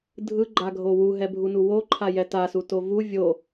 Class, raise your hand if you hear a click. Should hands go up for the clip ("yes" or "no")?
yes